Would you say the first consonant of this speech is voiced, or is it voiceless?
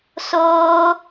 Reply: voiceless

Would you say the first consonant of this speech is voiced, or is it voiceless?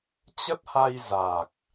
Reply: voiceless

